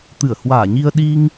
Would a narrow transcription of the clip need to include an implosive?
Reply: yes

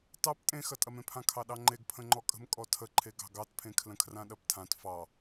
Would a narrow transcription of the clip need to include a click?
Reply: yes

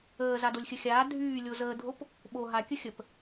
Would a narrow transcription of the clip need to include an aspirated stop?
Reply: no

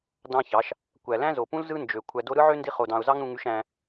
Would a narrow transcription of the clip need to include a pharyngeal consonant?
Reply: yes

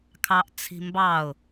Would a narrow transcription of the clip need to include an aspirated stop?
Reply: yes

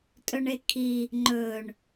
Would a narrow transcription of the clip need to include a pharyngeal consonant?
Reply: no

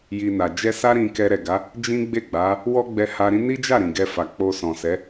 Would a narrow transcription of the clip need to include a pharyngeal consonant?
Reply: no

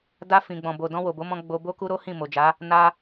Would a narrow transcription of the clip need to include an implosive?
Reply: no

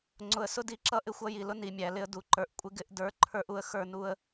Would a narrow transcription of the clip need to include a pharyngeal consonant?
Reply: no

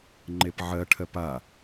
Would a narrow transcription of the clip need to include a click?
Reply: yes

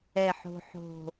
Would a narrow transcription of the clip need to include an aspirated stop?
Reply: no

